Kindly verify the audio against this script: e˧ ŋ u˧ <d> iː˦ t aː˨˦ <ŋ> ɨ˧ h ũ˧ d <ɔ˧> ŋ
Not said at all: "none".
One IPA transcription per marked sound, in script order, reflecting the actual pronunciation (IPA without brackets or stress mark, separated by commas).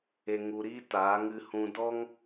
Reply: ɾ, ŋ, ɔ˦